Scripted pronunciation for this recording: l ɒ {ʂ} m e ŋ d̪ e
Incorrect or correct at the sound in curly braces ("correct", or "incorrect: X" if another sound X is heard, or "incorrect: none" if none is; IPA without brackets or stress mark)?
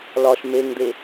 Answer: incorrect: ʃ